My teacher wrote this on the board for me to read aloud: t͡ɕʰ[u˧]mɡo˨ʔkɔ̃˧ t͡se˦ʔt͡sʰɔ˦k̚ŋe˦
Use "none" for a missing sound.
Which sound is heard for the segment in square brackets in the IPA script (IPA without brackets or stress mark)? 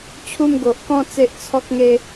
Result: u˧